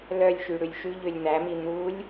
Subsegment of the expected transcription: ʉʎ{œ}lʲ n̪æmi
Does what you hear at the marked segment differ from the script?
yes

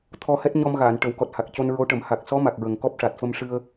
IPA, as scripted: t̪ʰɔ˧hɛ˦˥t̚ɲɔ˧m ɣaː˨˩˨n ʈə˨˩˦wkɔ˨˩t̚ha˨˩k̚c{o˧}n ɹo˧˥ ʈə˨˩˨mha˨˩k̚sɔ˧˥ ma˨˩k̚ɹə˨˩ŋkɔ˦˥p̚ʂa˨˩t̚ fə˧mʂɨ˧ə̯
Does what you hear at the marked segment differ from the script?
no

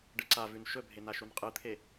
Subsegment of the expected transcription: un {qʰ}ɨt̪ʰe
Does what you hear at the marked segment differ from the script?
yes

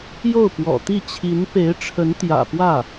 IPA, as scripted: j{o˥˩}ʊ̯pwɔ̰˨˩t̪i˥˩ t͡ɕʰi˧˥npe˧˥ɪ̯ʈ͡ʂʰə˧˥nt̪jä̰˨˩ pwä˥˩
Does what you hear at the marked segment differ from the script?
no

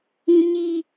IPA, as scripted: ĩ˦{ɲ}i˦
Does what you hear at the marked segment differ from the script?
no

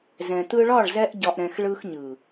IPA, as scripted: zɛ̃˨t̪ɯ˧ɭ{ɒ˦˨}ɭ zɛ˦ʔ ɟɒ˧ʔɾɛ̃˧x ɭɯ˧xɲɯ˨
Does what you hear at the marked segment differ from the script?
no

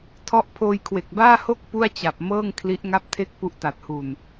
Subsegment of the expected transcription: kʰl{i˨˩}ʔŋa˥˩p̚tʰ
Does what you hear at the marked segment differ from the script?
yes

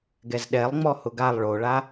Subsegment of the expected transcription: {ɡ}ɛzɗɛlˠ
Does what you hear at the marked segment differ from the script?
no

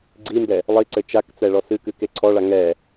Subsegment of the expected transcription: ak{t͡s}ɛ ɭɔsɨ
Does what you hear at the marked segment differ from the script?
no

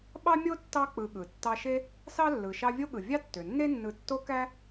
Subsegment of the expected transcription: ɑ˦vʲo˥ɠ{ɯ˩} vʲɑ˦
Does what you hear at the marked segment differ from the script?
no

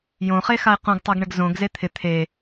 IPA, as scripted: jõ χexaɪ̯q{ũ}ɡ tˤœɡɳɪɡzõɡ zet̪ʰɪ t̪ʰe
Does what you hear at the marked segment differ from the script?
yes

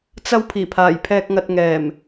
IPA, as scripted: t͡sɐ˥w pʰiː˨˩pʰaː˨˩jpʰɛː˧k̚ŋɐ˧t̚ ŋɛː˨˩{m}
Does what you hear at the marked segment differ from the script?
no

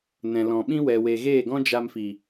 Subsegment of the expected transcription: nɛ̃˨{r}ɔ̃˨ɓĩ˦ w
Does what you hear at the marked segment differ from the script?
yes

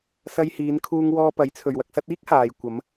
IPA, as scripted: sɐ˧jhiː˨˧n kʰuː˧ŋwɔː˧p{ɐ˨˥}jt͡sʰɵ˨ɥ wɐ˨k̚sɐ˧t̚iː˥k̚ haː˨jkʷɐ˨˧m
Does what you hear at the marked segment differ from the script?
no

